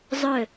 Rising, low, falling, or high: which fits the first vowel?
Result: falling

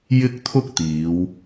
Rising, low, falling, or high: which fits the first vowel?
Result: high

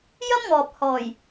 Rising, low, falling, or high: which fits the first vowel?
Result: high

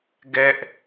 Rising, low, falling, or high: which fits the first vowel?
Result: high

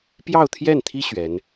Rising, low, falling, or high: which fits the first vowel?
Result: falling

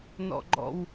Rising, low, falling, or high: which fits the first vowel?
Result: high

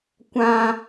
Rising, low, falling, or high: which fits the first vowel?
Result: high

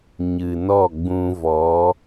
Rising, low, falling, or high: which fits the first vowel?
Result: low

